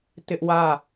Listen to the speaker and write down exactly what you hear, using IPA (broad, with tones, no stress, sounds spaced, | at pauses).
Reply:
t ɪ˦ ʔ w ä˦˨